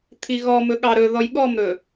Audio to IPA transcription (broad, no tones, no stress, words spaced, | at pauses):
t̪ʰiɣɔmɵ ɠɑɾɵ ðɔjɠɔmɾɵ